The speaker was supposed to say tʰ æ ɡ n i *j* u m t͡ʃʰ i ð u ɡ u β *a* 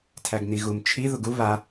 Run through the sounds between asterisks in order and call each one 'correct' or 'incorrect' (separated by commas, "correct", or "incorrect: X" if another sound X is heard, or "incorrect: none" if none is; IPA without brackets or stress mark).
incorrect: ɣ, correct